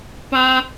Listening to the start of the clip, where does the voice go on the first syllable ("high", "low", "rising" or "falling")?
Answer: high